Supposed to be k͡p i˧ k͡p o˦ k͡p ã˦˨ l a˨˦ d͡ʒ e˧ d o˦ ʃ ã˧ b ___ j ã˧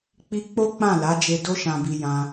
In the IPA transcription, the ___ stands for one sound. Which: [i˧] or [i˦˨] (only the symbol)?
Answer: i˧